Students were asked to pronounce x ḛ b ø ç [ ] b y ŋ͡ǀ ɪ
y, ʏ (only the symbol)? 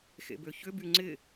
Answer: ʏ